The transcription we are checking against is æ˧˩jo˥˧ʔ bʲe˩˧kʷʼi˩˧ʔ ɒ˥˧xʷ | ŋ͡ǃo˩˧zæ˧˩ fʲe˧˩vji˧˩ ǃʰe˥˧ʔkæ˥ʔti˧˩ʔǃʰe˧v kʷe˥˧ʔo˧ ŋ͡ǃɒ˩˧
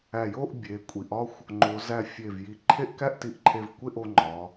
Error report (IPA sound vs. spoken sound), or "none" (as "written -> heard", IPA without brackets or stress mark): none